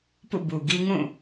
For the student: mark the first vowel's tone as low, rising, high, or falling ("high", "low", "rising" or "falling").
falling